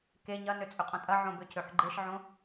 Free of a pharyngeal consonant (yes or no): no